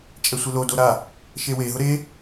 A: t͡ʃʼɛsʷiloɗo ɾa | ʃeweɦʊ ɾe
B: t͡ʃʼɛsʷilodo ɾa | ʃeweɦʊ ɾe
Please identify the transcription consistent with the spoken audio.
B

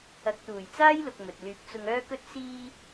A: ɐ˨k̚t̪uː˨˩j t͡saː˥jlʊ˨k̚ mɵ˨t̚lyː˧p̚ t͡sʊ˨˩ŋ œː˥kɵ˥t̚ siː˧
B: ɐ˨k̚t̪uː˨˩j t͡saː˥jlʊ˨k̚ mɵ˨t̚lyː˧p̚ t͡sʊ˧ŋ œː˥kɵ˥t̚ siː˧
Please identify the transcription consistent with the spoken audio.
B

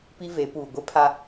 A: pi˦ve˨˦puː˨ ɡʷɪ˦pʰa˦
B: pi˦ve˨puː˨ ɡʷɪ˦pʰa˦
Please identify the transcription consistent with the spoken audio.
A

